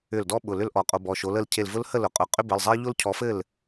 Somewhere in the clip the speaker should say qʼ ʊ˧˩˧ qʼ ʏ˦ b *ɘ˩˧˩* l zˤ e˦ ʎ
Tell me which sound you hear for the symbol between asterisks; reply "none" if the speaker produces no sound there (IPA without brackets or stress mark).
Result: ɘ˩˧˩